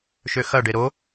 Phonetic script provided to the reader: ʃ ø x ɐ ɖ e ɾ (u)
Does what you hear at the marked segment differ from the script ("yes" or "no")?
yes